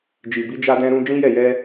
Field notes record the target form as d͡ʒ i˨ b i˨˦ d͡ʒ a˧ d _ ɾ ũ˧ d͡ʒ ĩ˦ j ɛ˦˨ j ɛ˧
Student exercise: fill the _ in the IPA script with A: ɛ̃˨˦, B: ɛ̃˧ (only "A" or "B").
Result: B